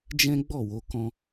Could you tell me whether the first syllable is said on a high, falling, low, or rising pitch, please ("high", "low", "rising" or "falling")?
high